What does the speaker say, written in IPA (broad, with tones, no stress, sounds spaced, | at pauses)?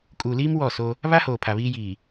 kʼ uː˨ l iː˦ m w ɔ˦˨ s o˦ | β a˦ h oː˨ pʰ a˨ β iː˦ j iː˨